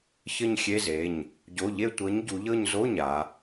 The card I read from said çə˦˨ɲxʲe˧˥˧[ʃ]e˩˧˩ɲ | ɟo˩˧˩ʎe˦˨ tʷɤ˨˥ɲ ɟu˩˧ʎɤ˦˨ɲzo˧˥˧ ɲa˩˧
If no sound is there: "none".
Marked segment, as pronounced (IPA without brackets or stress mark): z